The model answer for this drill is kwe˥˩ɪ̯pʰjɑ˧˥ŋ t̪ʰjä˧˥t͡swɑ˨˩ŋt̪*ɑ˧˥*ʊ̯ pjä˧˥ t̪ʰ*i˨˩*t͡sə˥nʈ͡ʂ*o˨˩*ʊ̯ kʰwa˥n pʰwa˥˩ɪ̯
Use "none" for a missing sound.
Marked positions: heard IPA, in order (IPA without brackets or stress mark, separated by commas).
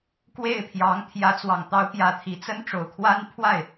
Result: ɑ˧˥, i˨˩, o˨˩